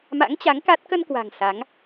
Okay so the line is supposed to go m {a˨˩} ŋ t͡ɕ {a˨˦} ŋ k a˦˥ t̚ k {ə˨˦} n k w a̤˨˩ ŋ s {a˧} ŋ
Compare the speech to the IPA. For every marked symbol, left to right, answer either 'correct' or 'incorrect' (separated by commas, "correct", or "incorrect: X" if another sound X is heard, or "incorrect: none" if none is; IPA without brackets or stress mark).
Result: incorrect: a̰˧˥, correct, incorrect: ə˧, incorrect: a˨˦